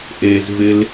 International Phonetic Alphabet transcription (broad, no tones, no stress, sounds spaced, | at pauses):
ʔ e z v ɪ l